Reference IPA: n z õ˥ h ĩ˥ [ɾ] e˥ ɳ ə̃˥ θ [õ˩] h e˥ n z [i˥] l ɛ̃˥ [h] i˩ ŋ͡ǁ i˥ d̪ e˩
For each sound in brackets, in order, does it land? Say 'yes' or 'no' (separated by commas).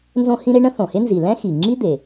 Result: yes, yes, no, no